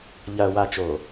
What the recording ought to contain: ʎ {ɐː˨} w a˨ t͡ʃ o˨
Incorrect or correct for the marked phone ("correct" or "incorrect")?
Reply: correct